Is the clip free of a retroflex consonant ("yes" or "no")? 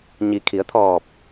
yes